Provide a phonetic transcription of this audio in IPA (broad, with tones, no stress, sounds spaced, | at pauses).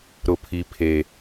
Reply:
ɾ ʊ˨ pʰ i˨ pʰ eː˨